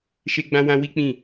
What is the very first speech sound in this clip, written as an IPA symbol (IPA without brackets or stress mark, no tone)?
ʃ